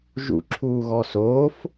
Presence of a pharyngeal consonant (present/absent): absent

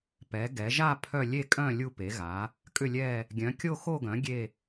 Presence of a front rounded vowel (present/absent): present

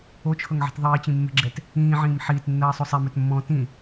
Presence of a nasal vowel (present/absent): present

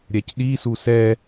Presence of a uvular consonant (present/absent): absent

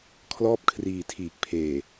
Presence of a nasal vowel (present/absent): absent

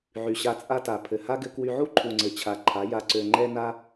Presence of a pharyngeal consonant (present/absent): present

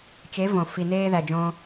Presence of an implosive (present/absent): absent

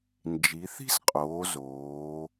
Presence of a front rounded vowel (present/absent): absent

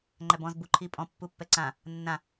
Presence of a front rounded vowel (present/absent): absent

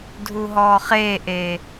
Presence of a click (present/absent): absent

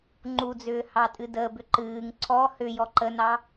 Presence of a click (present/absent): present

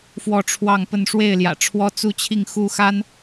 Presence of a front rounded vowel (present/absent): absent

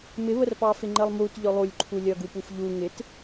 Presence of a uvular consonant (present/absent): absent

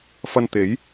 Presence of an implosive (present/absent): absent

